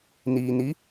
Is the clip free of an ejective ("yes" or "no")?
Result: yes